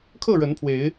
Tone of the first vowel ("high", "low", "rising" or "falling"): falling